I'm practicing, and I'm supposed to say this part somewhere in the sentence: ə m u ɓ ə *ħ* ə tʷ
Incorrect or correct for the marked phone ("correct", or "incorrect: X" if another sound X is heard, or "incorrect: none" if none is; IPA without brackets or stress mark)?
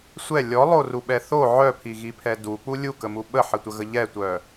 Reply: correct